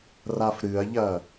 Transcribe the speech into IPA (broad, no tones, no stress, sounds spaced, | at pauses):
r a f ɾ ɨ ɐ̯ ʎ ɐ